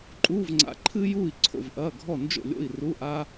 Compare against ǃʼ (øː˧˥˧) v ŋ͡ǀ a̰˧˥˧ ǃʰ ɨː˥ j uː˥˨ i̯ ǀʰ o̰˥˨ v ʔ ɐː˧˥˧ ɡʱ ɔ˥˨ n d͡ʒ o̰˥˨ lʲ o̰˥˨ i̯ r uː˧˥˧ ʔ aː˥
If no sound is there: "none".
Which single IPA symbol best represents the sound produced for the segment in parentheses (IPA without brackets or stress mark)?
uː˧˥˧